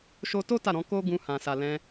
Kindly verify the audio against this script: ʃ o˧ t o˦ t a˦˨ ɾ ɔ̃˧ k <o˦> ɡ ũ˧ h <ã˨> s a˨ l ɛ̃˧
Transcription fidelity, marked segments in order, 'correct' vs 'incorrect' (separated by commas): correct, correct